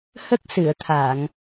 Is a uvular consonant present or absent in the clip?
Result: absent